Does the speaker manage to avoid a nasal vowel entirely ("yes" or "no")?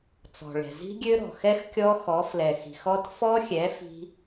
yes